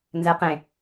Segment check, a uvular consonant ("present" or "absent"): present